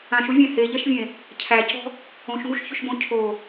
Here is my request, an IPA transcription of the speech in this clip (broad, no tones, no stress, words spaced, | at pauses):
ãʃuvʲæ̃ heʎɛʃvʲẽ | cʰæcɔ̤ | õʃŋuʃçʏʃbõ cʰo